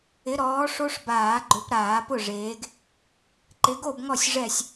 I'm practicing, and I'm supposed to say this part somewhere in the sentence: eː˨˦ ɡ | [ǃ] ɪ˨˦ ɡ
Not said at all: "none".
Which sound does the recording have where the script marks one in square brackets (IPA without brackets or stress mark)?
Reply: ǃ